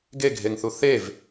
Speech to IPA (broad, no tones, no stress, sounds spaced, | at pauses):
ɡ e ɡʱ e ŋ θ u θ e v